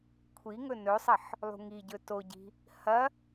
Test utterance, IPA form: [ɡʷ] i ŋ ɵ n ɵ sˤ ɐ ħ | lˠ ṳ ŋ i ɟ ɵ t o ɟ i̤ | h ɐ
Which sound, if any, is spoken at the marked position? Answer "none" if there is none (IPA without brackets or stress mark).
kʷʰ